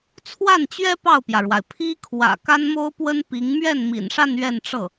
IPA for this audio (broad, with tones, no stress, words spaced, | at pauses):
t͡sʰwa˥˩nt͡ɕɥɛ˥ pɑ˥˩ʊ̯pjä˩ɻwa˩ɪ̯ pʰi˥ kʰwä̰˨˩ ka˥nmo˥ʊ̯pwə˥n pi˧˥ŋ mɥɛ˥˩n mḭ˨˩nʂa˥˧n ɥɛ˥˧nʈ͡ʂɤ˥˩